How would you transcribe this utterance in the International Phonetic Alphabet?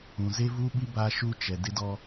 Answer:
ũ˨ z e˦ v uː˦ ɓ i˦ b a˦ ʃ u˦ t͡ʃ ɛ˨ d ɪ˦ d ɔ˦

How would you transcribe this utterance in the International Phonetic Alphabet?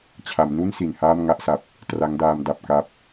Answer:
t͡ɕʰ a˩˦ m n u˥˩ n s i˨˩ n h aː˥˩ m ŋ a˥˩ ʔ s a˨˩ p̚ | t r a˦˥ ŋ d aː˧ m d a˨˩ p̚ k a˦˥ p̚

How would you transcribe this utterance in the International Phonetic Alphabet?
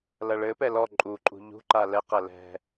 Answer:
l ɐ ɭ ɘ p ɛ l ɔ ǃʼ u ǃʼ ṳ ʎ ṳ ǃ a l ɛ q ɐ l ɛ̤

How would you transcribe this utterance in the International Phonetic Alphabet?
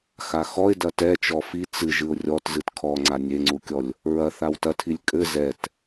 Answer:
x a x ɔ ɪ̯ d ɐ t ɛ t͡ʃ ɔ f i t͡s ɨ ʒ ɨ ʊ̯ rʲ ɔ t z ɨ t kʰ ɔ ŋ͡ǀ a nʲ e ŋ͡ǀ u kʲ ɔ lʲ | ɹ ɐ θ a w t ɐ tʰ i lʲ kʼ ɘ z ɛ t

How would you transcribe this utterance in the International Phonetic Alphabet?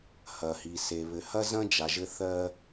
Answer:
h ɐ˩ h i˩ s e˩ β ɘ˩ h ɐ˥ z ɐ̃˥ d͡ʒ a˩ ʒ ɘ˧ θ ɜ˧

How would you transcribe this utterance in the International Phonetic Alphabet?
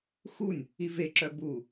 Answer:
x u nʲ | i v e ǁ œ b u

